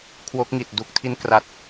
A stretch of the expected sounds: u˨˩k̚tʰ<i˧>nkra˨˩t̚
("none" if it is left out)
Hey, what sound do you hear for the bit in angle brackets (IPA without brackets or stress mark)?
i˧